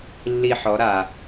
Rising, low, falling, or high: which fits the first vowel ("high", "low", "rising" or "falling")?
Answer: falling